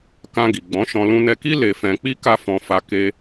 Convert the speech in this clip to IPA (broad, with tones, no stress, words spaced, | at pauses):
kã˧ɡi˨ ɡ͡bɔ̃˨˦ʃɔ̃˧ lũ˧nɛ˧ki˦ le˧fɛ̃˧k͡pi˦ ka˦fɔ̃˧ fa˧ ke˧